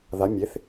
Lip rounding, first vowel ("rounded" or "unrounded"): unrounded